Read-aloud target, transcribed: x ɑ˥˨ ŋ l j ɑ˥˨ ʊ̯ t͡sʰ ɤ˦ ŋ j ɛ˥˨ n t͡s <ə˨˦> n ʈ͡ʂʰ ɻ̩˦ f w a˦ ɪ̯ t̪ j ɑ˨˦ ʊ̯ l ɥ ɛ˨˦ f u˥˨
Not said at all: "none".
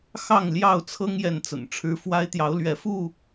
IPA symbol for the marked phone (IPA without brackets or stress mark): ə̰˨˩